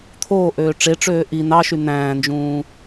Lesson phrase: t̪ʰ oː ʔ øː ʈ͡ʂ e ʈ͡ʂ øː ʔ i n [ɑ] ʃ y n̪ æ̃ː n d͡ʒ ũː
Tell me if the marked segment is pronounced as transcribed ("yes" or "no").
yes